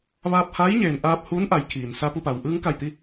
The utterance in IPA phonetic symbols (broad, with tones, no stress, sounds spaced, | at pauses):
ʋ aː˧ p̚ h aː˧˥ j ɲ eː˩ n ʔ aː˧ p̚ h uː˧˥ n ʔ a˩˧ j kʰ iː˩ n s a˧ p u˧ p a˩ w ʔ ɯː˧ ŋ k a˧˩ j t̪ i˧